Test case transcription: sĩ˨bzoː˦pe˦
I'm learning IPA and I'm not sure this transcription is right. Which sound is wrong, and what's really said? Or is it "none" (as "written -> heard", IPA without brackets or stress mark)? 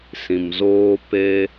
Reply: b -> m